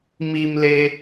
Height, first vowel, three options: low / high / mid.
high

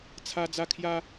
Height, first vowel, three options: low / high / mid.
low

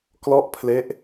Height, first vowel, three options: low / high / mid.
mid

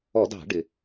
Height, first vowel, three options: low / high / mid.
mid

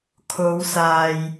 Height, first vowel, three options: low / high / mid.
mid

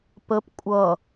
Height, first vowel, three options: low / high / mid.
mid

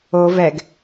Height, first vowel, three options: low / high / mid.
mid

